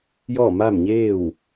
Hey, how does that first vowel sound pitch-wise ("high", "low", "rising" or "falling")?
falling